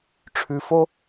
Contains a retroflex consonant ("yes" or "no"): yes